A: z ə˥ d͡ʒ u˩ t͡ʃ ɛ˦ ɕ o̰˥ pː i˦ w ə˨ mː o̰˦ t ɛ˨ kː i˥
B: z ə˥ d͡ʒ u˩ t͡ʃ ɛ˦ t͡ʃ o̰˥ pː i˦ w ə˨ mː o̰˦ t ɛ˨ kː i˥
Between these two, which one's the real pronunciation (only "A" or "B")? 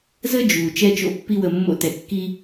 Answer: B